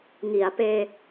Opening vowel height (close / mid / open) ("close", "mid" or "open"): close